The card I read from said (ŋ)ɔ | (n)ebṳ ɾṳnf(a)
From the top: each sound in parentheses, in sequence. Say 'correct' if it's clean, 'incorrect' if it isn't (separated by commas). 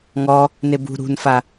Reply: correct, correct, correct